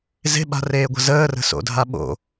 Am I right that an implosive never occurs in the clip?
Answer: no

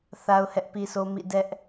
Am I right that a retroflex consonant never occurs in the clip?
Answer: yes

